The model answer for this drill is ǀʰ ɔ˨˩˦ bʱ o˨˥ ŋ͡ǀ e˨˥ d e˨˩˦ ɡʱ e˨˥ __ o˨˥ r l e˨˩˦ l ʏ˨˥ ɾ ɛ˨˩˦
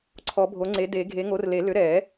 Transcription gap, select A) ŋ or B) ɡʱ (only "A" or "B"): A